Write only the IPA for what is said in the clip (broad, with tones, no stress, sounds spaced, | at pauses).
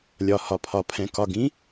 lʲ ɒ˩ h ɒ˩ pʰ ɒ˩ pʰ ɛ̃˩ k ɒ˩ ɡ ĩ˩˥